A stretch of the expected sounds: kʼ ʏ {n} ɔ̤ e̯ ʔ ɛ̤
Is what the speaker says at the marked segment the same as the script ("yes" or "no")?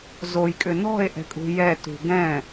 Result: yes